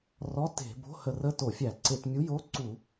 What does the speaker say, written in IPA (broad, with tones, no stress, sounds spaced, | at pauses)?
r ɔ˧˥˧ t e̤˧˩˧ b o̤˧˥˧ h ə˧˩˧ r ə˧˥˧ t o˧˩˧ fʲ æ˧˩˧ ǀ e˧˩˧ t mʲ u˧˥˧ j o˧˥˧ ǀ u˧˩˧